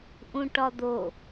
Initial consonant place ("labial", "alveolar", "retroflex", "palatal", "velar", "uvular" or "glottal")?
glottal